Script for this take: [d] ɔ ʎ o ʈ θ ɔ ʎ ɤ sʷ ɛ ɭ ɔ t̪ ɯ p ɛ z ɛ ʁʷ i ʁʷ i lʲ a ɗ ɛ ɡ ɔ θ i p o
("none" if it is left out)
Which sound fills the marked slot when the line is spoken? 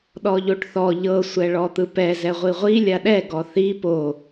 ɗ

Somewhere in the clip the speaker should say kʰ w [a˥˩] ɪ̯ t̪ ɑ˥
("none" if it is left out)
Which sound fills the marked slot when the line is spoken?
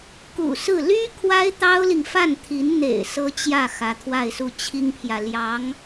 a˥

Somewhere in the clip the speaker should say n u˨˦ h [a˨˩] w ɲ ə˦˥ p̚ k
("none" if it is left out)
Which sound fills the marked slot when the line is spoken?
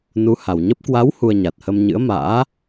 a˨˩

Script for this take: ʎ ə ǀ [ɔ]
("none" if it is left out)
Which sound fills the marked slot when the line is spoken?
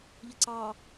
ɑ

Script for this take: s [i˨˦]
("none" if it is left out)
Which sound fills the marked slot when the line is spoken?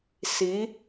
i˨˦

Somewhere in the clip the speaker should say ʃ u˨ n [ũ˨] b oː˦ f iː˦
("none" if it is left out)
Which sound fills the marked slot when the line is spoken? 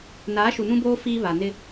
ũ˦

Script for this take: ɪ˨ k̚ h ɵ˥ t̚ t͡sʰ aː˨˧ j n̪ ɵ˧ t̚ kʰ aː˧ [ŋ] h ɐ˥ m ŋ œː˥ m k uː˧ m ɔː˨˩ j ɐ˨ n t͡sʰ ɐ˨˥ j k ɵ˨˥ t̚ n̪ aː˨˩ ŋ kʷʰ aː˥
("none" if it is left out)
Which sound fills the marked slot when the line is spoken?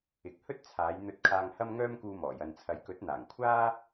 ŋ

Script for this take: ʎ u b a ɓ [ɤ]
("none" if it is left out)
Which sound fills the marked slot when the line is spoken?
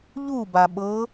ɤ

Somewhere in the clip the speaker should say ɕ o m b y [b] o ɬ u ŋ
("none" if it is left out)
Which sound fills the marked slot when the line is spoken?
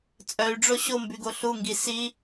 ɡ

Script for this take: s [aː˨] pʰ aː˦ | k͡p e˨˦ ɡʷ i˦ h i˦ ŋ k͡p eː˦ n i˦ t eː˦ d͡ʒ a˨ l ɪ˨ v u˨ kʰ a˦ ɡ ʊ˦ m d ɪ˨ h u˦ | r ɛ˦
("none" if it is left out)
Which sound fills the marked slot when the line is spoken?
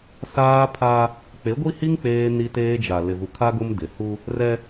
aː˦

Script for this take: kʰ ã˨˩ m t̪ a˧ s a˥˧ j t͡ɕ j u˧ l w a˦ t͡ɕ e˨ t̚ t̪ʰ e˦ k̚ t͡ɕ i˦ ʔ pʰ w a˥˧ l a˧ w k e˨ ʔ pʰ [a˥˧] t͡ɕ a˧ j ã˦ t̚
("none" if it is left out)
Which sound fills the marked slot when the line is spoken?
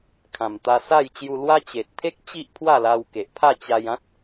a˥˧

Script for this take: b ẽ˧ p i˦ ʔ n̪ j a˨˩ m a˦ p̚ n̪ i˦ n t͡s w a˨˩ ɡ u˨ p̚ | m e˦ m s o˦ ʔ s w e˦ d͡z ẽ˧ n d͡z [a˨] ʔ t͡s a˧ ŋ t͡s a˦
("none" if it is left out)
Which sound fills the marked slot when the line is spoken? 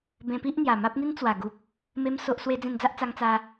a˦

